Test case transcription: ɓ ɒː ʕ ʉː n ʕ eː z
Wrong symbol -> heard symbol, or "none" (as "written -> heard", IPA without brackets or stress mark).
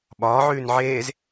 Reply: none